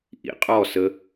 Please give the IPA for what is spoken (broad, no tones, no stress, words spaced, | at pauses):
ʔḭqʼɔ sə